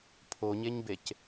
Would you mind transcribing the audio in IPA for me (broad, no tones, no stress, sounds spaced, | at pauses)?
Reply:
pʰ o ɲ e ɲ b e c